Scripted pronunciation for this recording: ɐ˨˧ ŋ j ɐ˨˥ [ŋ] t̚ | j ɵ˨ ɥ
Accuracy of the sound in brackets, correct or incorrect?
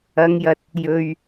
incorrect